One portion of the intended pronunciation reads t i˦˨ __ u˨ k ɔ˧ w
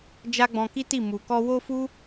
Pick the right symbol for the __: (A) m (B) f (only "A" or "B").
A